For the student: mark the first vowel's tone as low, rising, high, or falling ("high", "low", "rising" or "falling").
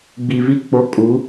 low